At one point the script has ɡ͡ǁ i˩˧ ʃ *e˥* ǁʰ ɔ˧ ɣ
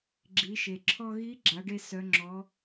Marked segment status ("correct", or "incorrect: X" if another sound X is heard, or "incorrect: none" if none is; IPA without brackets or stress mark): incorrect: e˩